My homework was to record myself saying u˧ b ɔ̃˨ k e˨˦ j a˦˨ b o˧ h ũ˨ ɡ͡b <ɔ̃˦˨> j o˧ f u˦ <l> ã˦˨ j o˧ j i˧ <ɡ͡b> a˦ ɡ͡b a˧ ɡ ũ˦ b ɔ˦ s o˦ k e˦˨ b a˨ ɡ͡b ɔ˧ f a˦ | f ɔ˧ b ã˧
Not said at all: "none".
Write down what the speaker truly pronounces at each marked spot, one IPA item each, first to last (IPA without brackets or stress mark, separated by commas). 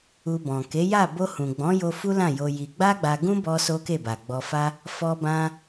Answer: ɔ̃˨˦, l, ɡ͡b